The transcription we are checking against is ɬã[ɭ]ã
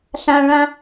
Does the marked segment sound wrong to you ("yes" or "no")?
no